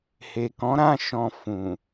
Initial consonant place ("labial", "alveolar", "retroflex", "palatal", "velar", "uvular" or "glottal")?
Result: glottal